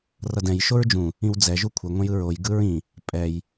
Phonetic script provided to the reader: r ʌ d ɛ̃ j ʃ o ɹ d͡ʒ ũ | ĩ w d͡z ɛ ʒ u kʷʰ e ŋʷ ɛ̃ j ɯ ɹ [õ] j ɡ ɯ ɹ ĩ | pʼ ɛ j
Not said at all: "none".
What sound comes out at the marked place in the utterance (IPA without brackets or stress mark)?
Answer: o